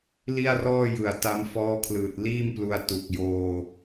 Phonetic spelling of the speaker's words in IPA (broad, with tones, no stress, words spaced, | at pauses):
li˥˩a̯rɔː˥˩jɯ˨˩a̯ ta˦˥mfɔː˦˥kʰlɯː˨˩t̚ liː˥˩mplu˧a̯tu˨˩k̚joː˧